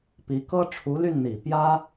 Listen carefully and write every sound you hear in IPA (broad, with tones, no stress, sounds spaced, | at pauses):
p i˧˥ k ɤ˥ ʈ͡ʂʰ u˧˥ l y˥˩ n n̪ i˨˩ p j ä˥